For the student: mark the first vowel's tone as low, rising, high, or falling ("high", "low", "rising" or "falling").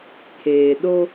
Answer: low